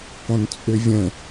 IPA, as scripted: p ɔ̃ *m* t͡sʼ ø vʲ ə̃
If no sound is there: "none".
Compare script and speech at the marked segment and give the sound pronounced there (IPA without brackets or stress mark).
n